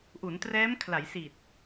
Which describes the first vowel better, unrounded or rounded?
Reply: rounded